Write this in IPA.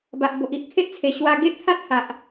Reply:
ba˨ʔ bo˨ʔi˨ʔ kʰe˦ʔt͡sʰe˨˩ ɕwa˧ ɡe˦ʔt̪ʰa˦t̚ ha˨ʔ

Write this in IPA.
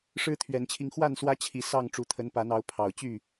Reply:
ʂɻ̩˦t̪ʰɥɛ˨˦nt͡ɕʰi˧ŋ xwa˥˨nswä˦t͡ɕʰi˨˦ sɑ˥˨ŋ ʈ͡ʂu˨˦t̪ʰə˨˦npa˨˦nɑ˨˦ʊ̯ pʰɑ˨˩ʊ̯t͡ɕy˥˨

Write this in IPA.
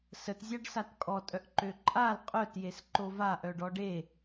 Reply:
sətzʲaɖ satkʼɔtʼœʔ ǃøǃʼal qʼœtjes ǃova ʔœɖɔɖe

